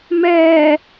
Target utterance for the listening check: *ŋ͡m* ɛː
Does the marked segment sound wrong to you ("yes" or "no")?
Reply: yes